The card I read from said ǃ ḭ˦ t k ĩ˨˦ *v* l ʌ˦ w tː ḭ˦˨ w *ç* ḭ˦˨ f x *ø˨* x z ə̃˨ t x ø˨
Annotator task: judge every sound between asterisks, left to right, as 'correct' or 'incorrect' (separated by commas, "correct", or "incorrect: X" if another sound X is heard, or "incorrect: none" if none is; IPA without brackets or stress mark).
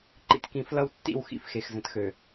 incorrect: f, incorrect: x, incorrect: e˨